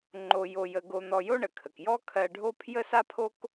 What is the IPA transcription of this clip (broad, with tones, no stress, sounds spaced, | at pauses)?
ŋ͡ǃ o˧ j o˧ j ə˧ ɡ o˧ n̪ ɔ˧ j o˥ ɳ ə˩ kʰ ə˩ k j ɔ˥ kʰ ɜ˧ ɖʱ o˥ pʰ j ə˥ s a˥ pʰ o˥ k